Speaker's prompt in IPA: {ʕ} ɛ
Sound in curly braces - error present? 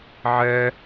no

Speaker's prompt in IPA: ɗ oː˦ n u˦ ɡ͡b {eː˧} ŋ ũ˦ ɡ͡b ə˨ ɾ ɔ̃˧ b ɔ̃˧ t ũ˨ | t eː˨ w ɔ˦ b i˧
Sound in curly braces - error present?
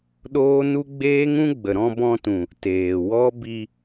yes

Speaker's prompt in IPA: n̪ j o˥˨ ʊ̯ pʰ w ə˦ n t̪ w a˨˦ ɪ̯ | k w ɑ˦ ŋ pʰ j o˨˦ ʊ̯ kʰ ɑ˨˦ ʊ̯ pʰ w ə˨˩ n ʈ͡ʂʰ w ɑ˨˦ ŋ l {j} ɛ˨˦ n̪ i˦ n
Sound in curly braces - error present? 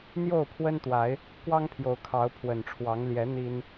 no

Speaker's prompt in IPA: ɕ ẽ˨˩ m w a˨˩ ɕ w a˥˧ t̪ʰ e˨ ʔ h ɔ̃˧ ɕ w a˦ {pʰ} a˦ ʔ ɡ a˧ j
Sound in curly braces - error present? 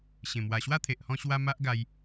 yes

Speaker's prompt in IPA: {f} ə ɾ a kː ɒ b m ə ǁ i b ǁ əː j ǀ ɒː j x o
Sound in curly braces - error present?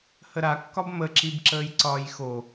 yes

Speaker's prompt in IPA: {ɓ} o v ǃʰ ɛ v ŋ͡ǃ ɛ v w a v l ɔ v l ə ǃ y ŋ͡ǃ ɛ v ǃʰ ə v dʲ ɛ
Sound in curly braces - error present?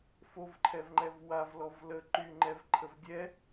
yes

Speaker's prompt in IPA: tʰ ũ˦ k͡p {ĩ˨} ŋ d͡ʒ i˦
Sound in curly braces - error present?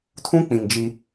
no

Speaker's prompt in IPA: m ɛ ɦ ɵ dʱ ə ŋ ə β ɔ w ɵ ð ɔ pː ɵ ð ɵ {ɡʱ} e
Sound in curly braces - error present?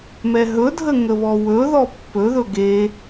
yes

